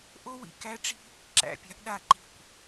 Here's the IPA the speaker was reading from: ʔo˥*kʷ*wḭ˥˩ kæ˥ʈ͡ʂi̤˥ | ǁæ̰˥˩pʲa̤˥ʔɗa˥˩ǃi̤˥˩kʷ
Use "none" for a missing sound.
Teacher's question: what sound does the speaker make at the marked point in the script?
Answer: none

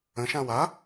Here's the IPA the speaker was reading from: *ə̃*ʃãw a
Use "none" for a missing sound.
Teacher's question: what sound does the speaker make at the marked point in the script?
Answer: ə̃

